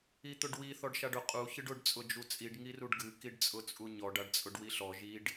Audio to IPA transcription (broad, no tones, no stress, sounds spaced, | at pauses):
i t̪ ʊ ɖ w i θ ɔ ɖ ʃ a ɖ ʊ qʼ u ç ɨ ɖ ʊ ɖ t͡sʼ ʊ d͡ʒ u t͡sʼ i ɖ ŋ i r u ɖ ɡ ɨ k i ɖ t͡sʼ ʊ t͡sʼ u ɲ ɔ ɖ a ɖ t͡sʼ ʊ ɖ w i ɬ ɔ ʒ i ɖ